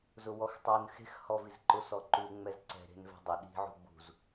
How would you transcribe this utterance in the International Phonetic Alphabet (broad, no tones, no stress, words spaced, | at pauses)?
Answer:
zʊwɔxtˤun xe̤x hɔvizǃʊ sɔǃu ŋ͡mɛzǀɛ̤ ɾe̤nvɛ̤dˤʊ ɗi̤ ʕṳɡ͡bṳz